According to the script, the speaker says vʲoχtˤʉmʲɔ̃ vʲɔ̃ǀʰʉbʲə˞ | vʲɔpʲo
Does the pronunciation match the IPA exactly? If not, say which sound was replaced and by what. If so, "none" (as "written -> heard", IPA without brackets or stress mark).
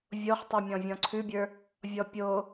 none